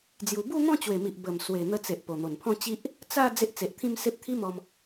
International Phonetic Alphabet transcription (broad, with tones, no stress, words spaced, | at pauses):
d͡zju˧ bu˥˧ n̪ɔ̃˥˧t͡ɕwe˨˩mi˨ʔ bə˨˩mswe˨˩ n̪ə˧t͡se˨ʔ po˨˩n̪o˨˩npʰɔ̃˥˧t͡ɕi˦ʔ | t͡sa˥˧ d͡ze˦ʔt͡se˨ʔt̪ʰĩ˥˧mse˦p̚ t̪ʰi˦mɔ˧m